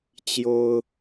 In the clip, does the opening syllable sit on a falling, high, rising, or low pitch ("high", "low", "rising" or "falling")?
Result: high